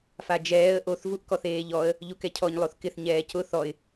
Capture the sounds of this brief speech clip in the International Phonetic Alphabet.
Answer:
fad͡ʒɛːə̯ ʔoθ vuʔkɔθeːʎɔə̯ | ʎukɛcʰɔɲ lˠoθkɪθ ɲɛːcʊ θɔɪ̯

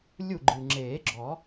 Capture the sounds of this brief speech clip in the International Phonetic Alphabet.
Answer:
lʲu˥˩ɡ͡ǃɨ˨˩ ŋ͡ǁeː˨˩˦ɡ͡ǁɔ˨˩˦

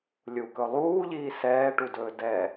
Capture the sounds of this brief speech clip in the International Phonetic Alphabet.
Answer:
lʲukɵ lˠuːʎiː sɛːʈudɵː dɛ

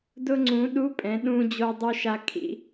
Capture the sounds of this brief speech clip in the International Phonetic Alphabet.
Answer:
dʊ˧ŋ͡ǀũ˩˧ ɗu˧˥pʼɛ̃˩˧ɗũ˧ d͡ʑo˧dˤu˧ʃa˧kʰḭ˧

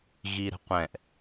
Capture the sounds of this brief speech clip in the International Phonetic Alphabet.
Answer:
ɣiɾə̤qʷɛ̃ʔ

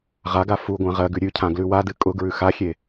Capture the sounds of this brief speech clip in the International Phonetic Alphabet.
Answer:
ʁaɡa fu ɡʷãʁɜɡʉ ɾʲʉcʰã ɡlʉwadɨ kʼʊ ɡɹʉxaxʲe

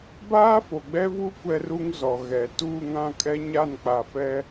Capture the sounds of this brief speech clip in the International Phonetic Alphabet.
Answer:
baː˦fo˨ɡ͡bɛ˦vu˦ kʷɛ˦ru˦ŋzɔ˨ɣɛ˨ tuː˦˨ŋã˦˨kʼɛ˦ ɲa˦˨nk͡pa˨fɛ˦

